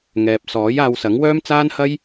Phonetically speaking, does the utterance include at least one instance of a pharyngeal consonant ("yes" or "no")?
no